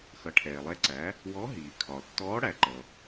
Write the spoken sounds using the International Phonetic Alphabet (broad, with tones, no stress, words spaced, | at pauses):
xʌ˩˥ʈʰɛː˩lˠɛ˧˥ǀæ˩˥ | wɔ˧˥ɦiː˩kʰɒ˩ tːɔː˧˥ɽæ˩ ǃʌ˩